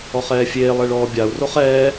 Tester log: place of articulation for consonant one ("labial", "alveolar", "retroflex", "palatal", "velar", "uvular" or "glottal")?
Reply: uvular